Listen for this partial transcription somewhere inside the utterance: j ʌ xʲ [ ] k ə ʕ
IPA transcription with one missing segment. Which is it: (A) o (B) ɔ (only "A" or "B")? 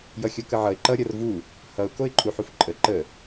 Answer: A